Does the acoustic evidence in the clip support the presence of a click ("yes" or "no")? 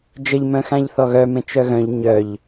no